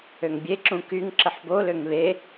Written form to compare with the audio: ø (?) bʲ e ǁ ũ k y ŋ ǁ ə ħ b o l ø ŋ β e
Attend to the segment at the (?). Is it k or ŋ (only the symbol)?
ŋ